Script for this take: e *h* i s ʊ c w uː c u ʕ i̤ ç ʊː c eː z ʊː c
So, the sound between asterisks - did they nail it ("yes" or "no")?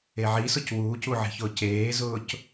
no